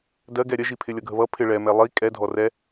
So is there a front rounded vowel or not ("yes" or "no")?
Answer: no